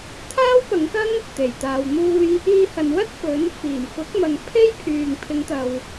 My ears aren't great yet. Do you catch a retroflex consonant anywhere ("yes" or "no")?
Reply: no